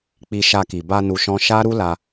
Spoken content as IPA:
k͡p i˧ ʃ a˧ k i˨ b a˧ n u˧ ʃ ɔ̃˦ ʃ a˦ ɾ u˦ l a˧

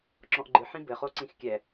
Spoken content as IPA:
ǁ ɔ̃ ʔ ɡ͡ǃ ɨ ħ ĩ b ɘ χ o ǀ ĩ x kʲ ɛ

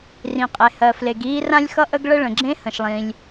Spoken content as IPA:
r ĩ˩ qʼ e˩ h ɜ˩ f l e˩ ɡ iː˥ r ã˥ lʲ x ʌ˥ ʔ ə˥ ɡ ɭ ə˥ ɭ ə̃˩ ɡ͡ǁ ẽ˥ h ə̃˩ ʃ lˠ ĩ˩ lʲ

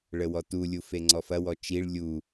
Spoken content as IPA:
ɭ ə w ɔ t u lʲ u f e ŋ͡ǀ ɔ f ɐ w ɔ t͡ʃ i ɭ lʲ u

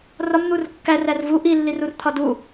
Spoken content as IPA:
r ɒ m n̪ u r kː æ r æ r v u ʔ i lː i r u r t̪ʰ ɒ d u

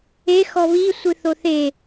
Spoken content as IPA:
e x ɔ β i sʷ ɨ θ o θ e

